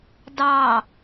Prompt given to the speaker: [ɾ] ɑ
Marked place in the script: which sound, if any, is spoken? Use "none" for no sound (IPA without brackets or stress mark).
d